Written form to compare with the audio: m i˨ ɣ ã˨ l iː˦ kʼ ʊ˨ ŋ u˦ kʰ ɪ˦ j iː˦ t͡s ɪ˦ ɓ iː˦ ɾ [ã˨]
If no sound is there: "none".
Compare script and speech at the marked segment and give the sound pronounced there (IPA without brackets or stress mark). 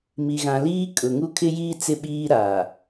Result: a˨